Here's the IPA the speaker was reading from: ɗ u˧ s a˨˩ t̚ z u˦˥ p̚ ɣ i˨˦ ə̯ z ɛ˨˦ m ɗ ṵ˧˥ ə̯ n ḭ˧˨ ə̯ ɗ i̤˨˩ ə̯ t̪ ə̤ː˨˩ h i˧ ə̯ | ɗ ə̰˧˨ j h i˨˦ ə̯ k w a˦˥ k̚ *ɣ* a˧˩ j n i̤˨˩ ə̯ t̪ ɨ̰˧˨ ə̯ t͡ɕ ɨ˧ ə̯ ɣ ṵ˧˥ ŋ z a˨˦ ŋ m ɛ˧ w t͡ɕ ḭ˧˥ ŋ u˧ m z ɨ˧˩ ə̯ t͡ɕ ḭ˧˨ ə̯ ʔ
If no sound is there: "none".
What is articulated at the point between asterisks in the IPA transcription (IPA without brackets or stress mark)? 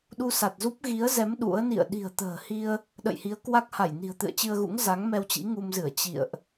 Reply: h